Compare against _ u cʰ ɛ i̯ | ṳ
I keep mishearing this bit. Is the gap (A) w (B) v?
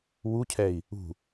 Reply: A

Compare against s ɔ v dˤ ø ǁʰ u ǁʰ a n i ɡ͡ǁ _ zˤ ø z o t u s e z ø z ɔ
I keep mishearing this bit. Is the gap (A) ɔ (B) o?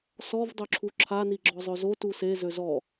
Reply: A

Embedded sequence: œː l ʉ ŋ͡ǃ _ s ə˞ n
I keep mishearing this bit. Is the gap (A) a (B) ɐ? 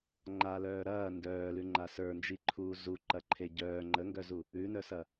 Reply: A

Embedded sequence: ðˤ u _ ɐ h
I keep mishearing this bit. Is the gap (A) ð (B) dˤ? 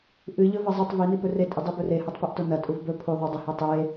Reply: B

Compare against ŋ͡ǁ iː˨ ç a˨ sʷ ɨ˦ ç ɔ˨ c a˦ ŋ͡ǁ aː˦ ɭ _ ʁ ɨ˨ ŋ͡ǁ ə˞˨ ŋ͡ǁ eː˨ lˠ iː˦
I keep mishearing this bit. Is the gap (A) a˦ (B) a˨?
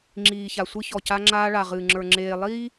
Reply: B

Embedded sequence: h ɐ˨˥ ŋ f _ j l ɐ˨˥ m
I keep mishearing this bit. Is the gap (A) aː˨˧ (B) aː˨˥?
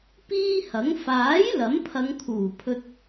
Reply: B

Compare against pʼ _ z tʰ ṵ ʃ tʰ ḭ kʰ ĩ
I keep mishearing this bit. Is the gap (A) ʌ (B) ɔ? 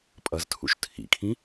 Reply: A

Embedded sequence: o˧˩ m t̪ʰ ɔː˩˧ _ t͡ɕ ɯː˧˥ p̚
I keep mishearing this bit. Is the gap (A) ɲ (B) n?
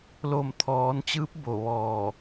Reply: B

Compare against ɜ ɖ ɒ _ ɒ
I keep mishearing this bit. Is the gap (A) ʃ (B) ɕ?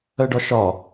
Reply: A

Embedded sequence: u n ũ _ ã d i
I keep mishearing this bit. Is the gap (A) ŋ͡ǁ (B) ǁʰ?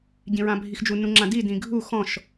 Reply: A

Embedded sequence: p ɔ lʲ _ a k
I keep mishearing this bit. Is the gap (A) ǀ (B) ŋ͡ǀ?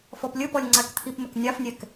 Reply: B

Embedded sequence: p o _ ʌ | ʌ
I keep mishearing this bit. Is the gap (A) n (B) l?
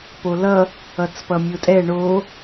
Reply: B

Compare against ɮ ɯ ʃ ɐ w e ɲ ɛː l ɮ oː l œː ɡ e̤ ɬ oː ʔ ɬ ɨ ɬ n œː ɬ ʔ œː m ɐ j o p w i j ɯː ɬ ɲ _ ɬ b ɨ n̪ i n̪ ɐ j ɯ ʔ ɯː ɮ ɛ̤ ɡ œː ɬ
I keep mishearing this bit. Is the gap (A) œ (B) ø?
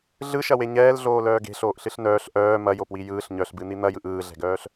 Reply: A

